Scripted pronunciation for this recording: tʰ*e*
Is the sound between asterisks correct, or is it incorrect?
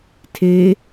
correct